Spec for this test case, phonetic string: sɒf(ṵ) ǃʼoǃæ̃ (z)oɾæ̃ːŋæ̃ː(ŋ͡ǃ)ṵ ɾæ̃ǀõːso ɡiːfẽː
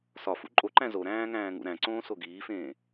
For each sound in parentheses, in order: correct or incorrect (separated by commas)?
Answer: correct, correct, incorrect